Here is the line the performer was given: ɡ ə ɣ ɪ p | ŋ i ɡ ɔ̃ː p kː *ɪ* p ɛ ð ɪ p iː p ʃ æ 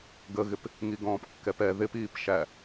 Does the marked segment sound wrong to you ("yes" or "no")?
yes